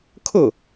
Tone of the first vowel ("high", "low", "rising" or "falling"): falling